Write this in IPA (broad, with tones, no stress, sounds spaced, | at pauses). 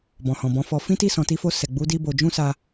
b ɔ̃˨ h ɔ̃˨ b ɔ̃˨˦ f ɔ˧ f ĩ˦ t i˦˨ s ɔ̃˨ t i˧ f o˧ s ɛ˨ ɡ͡b u˨˦ d i˧ b o˨ d͡ʒ ũ˧ s a˧